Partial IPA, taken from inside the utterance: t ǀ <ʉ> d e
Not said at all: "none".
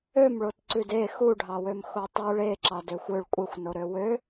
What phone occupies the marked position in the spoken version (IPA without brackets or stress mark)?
ʉ